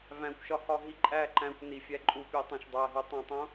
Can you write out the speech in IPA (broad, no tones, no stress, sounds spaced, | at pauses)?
v æ̃ kʷ ʃ ɒ h ɒ ɦ i ǃʼ æ ǃ æ̃ kʷ n i fʲ æ ǃʼ u pʲ e tˤ õ ʃ dˤ æ ɦ u tˤ æ̃ tˤ õ